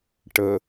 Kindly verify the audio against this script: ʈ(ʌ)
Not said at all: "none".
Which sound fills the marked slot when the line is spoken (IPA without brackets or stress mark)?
ə